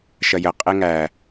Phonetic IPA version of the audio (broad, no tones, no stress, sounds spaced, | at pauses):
ʃ ɐ j ə qʼ e ŋ æ